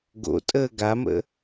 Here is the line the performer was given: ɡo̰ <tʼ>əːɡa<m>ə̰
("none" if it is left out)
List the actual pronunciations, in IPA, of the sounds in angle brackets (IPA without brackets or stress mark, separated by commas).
tʼ, m